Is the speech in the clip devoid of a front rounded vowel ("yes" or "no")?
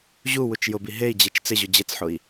yes